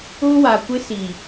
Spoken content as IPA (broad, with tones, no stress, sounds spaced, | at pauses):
ʊ˦ w a˨ kʷ ɪ˦ s i˨